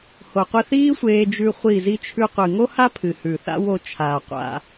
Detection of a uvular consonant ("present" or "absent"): present